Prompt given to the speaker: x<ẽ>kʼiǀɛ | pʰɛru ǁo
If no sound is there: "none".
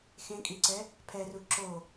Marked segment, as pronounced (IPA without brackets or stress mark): ẽ